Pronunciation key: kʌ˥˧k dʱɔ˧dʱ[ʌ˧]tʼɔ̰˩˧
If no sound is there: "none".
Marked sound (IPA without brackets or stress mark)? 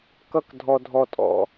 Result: ɔ˧